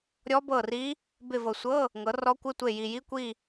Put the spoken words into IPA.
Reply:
ɾʲ ɔ˦˥ b ɤ˦˨ r i˦˥ | b ɪ˦˨ v ɤ˨ sʷ ɤ˧˥˧ | ŋ ɤ˨˦ r ɔ˦˥ kʷ ɪ˧˥˧ tʷ e˦˨ j i˨ j i˧˥˧ kʷ i˦˨

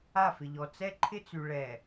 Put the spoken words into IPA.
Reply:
a˦˨ f ɪ˨ ʎ ɔ˨ t͡s ɛ˦ ǃʰ ɪ˦ t͡s y˨ ɭ ɛ˨

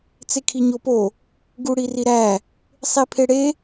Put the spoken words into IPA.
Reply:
t͡s e kʰ i ɲ o p o | ɡ u ɽ i r i ɾ æ | sˤ i pʰ e ɽ e

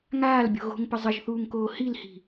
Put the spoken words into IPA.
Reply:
ŋ aː l bʲ o̤ ɣ o̤ ŋ p ə zˤ ə ʒ θ uː ŋ k oː h i l h i̤

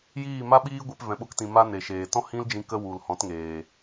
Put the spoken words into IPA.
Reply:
j iː˦˨ m a˦ ɓ iː˦ ɡʷ e˧ p v ɛ̃˨ ɓ o˧ k t ĩ˨ m a˦ n e˨ ʃ eː˨ t ɔ̃˦ h ĩ˦ l d͡ʒ ĩ˧ k ə˦ w u˨ l h ɔ̃˨˦ t ŋ eː˨

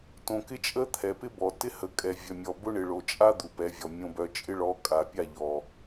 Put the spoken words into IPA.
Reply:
t õ˨ k ɪ˦ t͡ʃʼ ə˦ t̪ʰ ɛ˨ p ɪ˦ b ɔ˨ t ɪ˦ h ə˨ kʼ ɛ˨ vʲ œ˨ mʲ ɔ˨ b ʊ˦ ɳ ɪ˨ ɭ o˨ t͡ʃʼ a˦ d̪ u˨ p ɛ˨˦ vʲ ɔ˨ mʲ õ˦ b œ˦ t͡ʃʼ ɪ˦ ɭ ɔ˨˦ kʼ a˨ pʲ a˦˨ ʎ ɔ˨

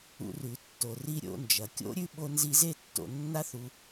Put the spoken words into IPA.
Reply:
ṵ˧ r ʉ˨ tː o˨ r i˦ ɾʲ o̰˧ n d͡ʒ ɐ˨ kʲ o̰˦ ɾʲ ʉ˦ ɓ o˦ n z i˦ z e˦˨ tː o̰˨ nː a˦ θ u˧

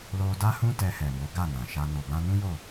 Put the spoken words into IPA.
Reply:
l o˧ d a˦ h ũ˦ t ɛ˧ h ɛ˨ m o˨˦ ɡ a˦˨ n ã˨ ʃ a˧ n o˨ b ã˧ n ũ˦ j o˦˨

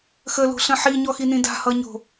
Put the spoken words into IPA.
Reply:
x ə l o̤ ɬ ə̃ ħ i ɲ ɔ x i n ĩ d a̤ h ʌ ɲ o̤

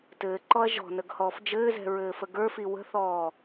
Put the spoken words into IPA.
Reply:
t ɘː ǃ ɔ ɐ̯ ʒ ɔ̤ n ə ɡ h ɔː f d͡ʒ ɘː z ɛ̤ ɹ ɘː f ə ɡ ə˞ f i w ə̤ θ ɔː

